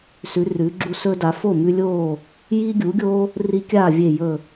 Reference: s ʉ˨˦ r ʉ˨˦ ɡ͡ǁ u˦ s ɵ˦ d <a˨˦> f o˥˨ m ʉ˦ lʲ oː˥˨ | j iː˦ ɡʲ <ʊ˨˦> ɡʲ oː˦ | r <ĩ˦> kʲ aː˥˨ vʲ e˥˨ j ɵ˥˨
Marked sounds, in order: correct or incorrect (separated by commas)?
correct, incorrect, incorrect